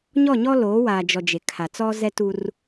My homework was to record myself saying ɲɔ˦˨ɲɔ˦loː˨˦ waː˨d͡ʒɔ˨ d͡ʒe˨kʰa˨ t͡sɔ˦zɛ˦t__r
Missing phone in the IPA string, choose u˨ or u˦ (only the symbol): u˦